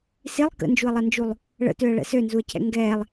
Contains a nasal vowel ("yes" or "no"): no